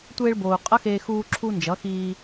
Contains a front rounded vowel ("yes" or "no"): no